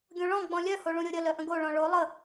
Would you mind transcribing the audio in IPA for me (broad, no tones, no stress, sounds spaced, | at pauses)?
ɡʲ õ ɭ ɔ̃ ɡ͡b ɔ̃ lʲ œ h o ɭ ũ ɾʲ o ɾʲ ə l œ ʔ ə̃ ɡ o ɭ ɔ̃ ɭ o lˠ ə